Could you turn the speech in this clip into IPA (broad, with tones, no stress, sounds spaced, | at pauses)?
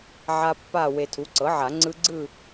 ʕ a˦˥ pː a˥˨ w e˨ tʰ u˩˥ ǀ ɤ˩˥ ʕ a˨˩˦ ŋ͡ǀ ɯ˦˥ ɡ͡ǀ ɯ˥˨